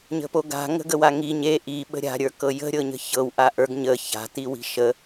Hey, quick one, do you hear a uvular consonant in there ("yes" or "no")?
no